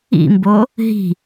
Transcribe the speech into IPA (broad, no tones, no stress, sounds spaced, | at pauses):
ḭ m b o | ɦ i̤